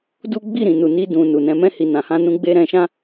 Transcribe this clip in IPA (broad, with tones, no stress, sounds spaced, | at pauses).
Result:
d u˦ ɡ͡b i˦˨ ɾ ĩ˨ n u˨ n i˧ d ũ˨ n u˨ n ɛ̃˧ m ɛ̃˦ h i˧ n ã˨ h ã˧ n ũ˧ ɡ͡b e˧ ɾ ɛ̃˧ ʃ ã˦